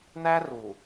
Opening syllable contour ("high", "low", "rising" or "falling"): high